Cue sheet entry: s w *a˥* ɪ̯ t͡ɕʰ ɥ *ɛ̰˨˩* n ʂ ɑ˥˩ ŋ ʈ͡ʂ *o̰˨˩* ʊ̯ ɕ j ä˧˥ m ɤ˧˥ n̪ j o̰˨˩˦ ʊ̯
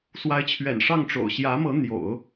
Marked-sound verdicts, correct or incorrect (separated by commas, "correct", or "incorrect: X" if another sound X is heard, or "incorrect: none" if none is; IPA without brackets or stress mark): incorrect: a˧˥, correct, correct